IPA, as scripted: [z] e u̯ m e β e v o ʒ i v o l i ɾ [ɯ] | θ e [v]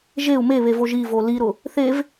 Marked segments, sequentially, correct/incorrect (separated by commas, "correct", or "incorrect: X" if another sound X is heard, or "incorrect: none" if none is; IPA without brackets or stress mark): incorrect: ʒ, incorrect: ʊ, correct